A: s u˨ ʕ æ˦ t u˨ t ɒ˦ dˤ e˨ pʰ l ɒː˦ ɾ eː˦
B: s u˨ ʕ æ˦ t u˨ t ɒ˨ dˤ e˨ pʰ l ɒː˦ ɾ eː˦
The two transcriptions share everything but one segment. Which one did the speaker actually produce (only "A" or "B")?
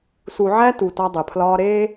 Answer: A